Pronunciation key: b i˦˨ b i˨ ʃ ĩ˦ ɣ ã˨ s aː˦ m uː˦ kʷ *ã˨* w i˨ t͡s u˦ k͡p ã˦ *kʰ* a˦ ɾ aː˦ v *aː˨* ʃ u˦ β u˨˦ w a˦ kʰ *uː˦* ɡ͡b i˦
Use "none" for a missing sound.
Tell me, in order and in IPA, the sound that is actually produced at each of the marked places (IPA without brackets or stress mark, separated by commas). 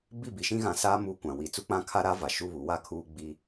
ã˨, kʰ, a˨, uː˦